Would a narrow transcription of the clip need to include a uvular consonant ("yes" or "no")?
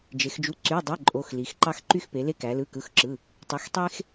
no